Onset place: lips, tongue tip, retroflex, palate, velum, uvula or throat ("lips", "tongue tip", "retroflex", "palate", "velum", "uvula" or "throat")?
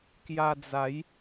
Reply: velum